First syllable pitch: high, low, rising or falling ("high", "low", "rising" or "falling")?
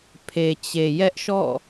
low